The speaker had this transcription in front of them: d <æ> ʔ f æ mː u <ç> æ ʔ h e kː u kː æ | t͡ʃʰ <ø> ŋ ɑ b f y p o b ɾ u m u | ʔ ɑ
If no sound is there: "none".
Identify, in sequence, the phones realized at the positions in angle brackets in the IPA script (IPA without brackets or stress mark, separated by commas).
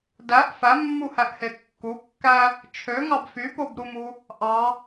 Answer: æ, h, ø